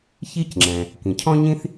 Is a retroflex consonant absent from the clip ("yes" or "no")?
yes